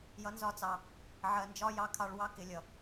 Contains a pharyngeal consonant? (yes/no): yes